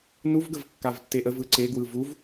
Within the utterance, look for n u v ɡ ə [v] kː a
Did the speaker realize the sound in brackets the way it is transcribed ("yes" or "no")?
yes